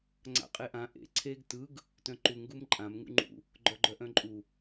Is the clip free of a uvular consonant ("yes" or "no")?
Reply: no